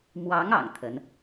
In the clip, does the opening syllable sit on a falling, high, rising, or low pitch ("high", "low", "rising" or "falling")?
rising